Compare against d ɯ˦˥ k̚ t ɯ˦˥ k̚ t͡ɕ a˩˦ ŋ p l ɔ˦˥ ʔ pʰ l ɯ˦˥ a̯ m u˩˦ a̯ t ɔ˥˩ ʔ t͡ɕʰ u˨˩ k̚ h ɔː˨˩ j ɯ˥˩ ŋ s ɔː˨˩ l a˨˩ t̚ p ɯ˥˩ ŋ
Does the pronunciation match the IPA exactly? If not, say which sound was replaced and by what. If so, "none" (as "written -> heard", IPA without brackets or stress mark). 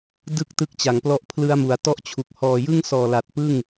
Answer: none